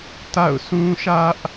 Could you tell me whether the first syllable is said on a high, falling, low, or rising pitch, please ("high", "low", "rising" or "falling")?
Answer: falling